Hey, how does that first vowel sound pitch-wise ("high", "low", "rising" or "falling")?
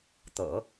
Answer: low